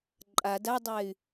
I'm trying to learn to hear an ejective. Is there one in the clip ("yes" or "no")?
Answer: yes